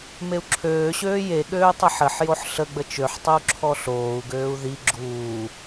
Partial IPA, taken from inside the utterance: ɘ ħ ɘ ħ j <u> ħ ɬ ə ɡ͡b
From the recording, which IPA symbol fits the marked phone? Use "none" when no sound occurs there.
o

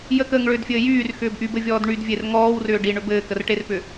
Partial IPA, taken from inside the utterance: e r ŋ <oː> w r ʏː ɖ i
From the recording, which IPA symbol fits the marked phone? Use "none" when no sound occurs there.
ɔː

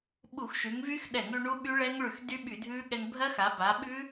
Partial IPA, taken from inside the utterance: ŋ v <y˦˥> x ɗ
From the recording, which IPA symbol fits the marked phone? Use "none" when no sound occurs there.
y˦˥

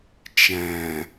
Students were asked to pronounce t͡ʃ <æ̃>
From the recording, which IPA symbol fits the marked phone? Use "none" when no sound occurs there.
æ̃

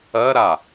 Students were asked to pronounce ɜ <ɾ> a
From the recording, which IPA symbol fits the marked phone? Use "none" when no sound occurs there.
ɾ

